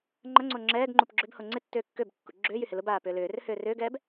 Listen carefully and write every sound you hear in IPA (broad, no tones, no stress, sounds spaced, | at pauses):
ŋ͡ǃ ɐ ŋ͡ǀ o ŋ͡ǁ ɛː ɡ ŋ͡ǃ u p ɡ͡ǁ ʏ b h o ŋ͡ǀ ɪ tː ʏː kː ø b kː ṵ ɡ͡ǁ ʏː j y h ɪ l ʊ b aː p ʏː l ʏː r ʏ h ʏː r ʏː ɡ ɛː b